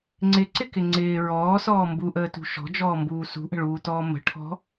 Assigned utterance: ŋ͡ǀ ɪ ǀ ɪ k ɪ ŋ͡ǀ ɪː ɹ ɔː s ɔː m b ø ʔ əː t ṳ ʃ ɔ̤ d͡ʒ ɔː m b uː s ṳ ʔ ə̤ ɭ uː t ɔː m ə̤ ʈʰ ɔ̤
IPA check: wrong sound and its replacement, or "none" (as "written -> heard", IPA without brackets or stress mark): ø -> u